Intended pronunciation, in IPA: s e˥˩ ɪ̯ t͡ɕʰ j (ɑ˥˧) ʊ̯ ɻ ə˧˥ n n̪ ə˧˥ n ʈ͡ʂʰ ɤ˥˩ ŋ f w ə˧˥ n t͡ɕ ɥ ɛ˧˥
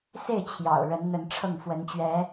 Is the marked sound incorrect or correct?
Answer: incorrect